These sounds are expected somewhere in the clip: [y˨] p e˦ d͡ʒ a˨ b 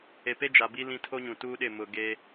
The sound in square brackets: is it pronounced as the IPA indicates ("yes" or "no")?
no